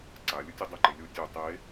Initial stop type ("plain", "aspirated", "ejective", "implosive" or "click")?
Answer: click